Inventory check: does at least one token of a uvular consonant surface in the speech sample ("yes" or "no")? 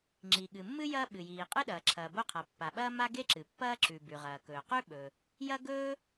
yes